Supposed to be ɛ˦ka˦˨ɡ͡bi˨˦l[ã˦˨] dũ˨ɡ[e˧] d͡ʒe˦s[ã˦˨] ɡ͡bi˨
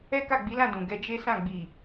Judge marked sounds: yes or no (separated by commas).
yes, no, yes